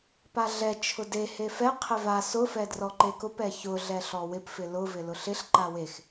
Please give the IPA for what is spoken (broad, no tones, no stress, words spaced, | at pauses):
paɮɛ t͡ʃʰʊde hefɛ qʰɪva sʊ fɛdrɔǃekʊp ɛçʊ ɮɛɬɔwɪp fɪlʊ vɪlʊɬɪɬ ǃawex